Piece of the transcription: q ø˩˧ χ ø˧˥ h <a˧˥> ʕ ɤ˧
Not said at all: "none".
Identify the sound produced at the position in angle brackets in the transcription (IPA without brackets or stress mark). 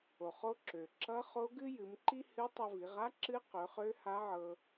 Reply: a˧˥